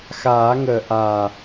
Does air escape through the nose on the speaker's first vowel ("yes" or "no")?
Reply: no